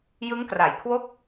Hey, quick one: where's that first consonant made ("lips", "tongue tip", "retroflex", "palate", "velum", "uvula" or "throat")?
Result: palate